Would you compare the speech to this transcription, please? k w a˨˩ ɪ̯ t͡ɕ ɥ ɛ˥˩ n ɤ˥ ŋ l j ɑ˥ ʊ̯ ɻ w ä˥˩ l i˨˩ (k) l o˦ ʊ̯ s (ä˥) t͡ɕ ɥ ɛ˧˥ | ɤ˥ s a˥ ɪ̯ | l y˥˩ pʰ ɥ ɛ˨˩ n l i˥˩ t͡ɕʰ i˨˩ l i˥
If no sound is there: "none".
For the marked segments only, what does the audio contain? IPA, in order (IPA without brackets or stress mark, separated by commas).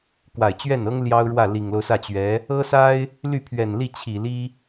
ŋ, ä˥˩